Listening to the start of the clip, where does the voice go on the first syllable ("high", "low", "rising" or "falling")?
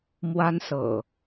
high